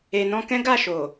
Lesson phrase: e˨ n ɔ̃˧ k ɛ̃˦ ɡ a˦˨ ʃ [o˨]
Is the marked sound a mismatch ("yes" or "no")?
no